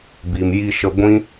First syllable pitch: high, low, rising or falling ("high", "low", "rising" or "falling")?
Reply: low